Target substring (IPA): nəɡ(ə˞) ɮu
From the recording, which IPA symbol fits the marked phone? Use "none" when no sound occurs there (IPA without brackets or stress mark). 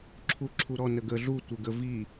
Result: ə